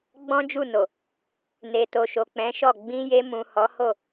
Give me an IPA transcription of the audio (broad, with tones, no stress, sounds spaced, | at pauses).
ɡ͡b ɔ̃˦ d͡ʒ u˦˨ n o˨ | n e˨ t o˨ ʃ o˨ k͡p ɛ̃˨˦ ʃ ɔ˦˨ ɡ͡b ĩ˧ j e˧ m ũ˨ h ɔ˨˦ h o˦˨